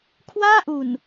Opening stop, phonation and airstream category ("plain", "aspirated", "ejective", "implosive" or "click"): aspirated